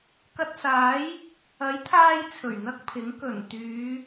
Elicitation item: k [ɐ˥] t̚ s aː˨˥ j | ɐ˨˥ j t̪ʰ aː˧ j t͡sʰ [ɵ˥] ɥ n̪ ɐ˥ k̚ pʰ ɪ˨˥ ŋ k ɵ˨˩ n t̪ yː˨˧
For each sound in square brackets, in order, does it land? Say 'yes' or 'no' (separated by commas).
no, no